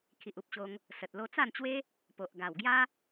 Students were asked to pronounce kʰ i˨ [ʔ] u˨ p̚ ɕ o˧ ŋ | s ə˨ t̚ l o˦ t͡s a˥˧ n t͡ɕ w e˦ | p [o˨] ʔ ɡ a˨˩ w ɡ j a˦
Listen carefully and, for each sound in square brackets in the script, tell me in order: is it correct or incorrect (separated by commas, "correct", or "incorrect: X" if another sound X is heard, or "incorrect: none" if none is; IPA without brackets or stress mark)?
correct, correct